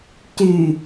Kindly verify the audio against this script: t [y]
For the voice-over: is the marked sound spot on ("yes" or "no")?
yes